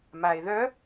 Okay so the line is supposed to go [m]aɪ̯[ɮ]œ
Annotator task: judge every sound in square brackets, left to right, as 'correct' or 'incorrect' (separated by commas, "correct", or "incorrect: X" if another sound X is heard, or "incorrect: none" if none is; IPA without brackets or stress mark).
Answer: correct, incorrect: ð